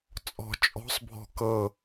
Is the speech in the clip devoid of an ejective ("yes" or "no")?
no